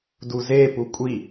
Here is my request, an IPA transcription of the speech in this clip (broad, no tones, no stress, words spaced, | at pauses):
duze pukʷʼi